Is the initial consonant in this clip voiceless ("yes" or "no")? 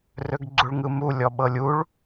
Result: no